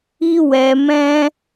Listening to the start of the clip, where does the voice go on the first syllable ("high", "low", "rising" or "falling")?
high